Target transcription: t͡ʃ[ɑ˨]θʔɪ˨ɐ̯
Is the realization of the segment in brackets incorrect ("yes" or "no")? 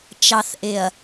no